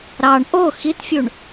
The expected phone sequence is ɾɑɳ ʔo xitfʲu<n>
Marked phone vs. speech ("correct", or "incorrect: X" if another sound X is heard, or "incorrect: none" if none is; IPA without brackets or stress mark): incorrect: ɳ